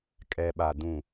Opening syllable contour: low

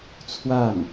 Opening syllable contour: falling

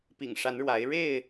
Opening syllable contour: low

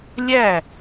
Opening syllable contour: falling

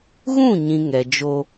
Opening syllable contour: falling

